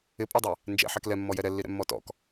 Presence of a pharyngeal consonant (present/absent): present